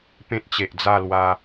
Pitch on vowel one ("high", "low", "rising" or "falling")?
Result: high